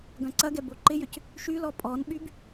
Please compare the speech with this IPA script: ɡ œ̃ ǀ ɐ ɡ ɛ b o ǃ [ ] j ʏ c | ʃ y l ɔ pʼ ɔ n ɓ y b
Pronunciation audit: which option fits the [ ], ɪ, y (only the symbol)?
ɪ